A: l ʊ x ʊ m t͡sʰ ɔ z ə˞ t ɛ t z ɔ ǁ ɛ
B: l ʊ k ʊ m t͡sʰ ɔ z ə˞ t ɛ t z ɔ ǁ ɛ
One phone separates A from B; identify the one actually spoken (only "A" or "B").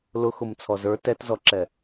A